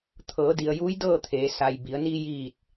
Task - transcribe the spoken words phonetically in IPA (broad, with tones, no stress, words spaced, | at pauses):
t̪ʰɤː˩˧di˩ə̯juː˧˥j dɤː˥˨t̪ʰeː˩˧sa˩jbi˩˧ə̯ niː˧jiː˧˩t̚